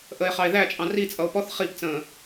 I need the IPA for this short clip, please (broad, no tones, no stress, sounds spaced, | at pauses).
ʔ ə e̯ χ ɑ e̯ ð æ t͡ʃʼ ɑ̃ r i t͡sʼ ʌ o̯ p ɔ θ χ i p t͡s ə̃ː